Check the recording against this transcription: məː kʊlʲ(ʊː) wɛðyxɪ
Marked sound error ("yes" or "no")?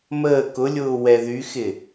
no